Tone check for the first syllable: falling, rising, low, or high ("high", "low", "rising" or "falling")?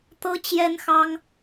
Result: high